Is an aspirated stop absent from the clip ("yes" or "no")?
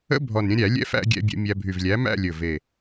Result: yes